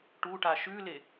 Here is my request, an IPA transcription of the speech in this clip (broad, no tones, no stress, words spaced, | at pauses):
ʈuʈa ʃʉle